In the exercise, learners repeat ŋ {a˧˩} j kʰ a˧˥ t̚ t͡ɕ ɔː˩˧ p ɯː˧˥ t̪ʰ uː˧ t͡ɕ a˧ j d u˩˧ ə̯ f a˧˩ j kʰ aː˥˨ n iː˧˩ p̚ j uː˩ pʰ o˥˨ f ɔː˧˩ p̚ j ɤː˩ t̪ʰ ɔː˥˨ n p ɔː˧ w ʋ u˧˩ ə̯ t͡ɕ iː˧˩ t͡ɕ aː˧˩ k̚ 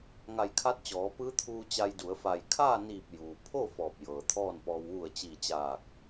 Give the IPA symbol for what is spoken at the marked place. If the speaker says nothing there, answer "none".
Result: a˧˩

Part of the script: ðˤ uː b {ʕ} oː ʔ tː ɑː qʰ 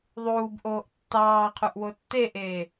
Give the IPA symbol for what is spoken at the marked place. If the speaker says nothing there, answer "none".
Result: ʔ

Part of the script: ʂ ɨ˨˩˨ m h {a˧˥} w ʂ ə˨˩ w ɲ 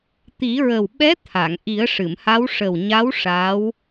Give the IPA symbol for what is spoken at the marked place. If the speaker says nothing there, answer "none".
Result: a˧˥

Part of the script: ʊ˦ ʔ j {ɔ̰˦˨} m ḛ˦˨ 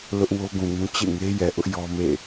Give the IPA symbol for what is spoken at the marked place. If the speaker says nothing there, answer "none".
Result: ɔ˦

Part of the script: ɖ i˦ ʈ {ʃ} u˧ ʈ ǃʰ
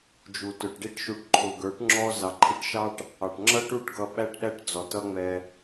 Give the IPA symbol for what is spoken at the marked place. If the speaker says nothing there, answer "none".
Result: ʃ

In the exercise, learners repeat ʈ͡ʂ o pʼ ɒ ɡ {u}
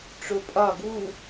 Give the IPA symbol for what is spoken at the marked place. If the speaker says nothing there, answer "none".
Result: u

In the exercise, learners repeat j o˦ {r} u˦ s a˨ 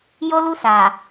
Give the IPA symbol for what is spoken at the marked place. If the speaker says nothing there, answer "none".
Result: l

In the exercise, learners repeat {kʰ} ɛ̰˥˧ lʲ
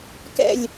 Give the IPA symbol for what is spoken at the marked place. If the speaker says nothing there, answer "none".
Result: k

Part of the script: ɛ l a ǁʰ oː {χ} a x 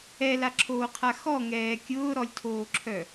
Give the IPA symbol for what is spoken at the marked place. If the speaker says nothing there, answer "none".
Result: qʰ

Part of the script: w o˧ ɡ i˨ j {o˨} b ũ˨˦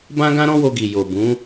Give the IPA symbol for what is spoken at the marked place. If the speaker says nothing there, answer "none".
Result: o˨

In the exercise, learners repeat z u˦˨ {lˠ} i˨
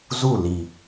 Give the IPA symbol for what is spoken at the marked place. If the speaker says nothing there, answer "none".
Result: l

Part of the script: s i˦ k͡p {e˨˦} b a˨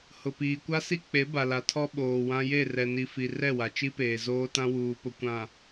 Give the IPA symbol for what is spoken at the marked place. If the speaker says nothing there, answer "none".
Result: e˨˦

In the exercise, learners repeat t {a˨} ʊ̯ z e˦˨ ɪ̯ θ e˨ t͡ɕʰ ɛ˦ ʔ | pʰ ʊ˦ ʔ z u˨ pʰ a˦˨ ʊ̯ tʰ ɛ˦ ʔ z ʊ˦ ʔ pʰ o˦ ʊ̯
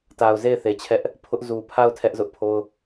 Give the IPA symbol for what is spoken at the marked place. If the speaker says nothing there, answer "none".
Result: a˨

